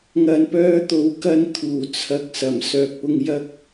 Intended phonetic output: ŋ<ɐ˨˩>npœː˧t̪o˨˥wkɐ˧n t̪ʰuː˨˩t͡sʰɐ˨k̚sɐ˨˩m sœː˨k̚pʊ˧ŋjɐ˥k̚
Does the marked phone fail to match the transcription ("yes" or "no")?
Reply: yes